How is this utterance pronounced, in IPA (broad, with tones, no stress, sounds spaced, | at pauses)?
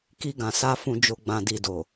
k i˧ ɡ ã˨ s a˧ f ũ˨ d͡ʒ o˨ ɡ͡b ã˨ d i˨ d o˨